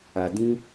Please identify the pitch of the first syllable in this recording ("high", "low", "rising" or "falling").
low